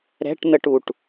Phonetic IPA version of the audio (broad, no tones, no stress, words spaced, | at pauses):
ɾɛ̤ʈn̪əʈuʈ